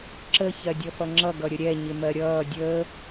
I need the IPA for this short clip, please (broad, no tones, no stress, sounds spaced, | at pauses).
ǁ ə ç ɜ dʲ ʌ f ʌ ŋ͡ǁ ʌ ɡ ʌ ɾʲ ə ɾʲ ɛ ɲ ɪ m ɜ ɾʲ ʌː dʲ əː